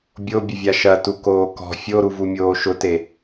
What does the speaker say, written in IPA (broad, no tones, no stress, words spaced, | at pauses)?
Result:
bʲobʲəvʲa ʃɐtukoː kɔ̤ fʲoɾuvumʲoː ʃʊte